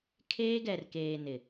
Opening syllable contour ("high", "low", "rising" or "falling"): high